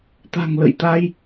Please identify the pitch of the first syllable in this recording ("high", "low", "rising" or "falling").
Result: low